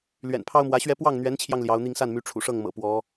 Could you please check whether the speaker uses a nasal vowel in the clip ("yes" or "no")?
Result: no